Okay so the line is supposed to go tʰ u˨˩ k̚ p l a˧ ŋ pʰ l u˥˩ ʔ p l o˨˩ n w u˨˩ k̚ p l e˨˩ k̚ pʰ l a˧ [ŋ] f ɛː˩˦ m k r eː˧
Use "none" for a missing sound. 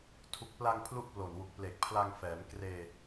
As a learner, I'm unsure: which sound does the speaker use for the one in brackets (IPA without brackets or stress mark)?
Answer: ŋ